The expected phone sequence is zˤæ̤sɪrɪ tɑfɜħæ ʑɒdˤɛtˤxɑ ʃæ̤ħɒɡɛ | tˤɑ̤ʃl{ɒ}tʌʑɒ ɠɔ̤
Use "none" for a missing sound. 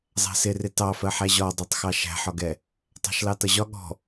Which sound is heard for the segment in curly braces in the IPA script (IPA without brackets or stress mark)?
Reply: ɑ